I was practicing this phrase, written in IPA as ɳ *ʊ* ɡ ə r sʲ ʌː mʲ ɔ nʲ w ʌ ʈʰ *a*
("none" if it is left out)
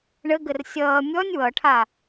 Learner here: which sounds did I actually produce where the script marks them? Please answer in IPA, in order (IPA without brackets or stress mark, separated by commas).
ə, a